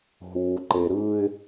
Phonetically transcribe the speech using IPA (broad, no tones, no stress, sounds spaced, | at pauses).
ɦ uː ǃ e ɾ ɯː ɪ̯